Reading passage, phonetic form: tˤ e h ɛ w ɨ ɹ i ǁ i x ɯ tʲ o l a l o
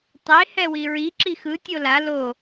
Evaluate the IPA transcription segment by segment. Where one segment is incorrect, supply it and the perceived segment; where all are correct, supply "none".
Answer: ɨ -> i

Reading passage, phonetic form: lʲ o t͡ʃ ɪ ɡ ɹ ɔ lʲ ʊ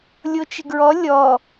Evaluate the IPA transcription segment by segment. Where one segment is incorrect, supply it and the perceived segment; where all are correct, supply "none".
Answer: ʊ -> ɔ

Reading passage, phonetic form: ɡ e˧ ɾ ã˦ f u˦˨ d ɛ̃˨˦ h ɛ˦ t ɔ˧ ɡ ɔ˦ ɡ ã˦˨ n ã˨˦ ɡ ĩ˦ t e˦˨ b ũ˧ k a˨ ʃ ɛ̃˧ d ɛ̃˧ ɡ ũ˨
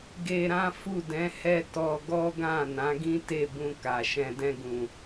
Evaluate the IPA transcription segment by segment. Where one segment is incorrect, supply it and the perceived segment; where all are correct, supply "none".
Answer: none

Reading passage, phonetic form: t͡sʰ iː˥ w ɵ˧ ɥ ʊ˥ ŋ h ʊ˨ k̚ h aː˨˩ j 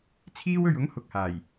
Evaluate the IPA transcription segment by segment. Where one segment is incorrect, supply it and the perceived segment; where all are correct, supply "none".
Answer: none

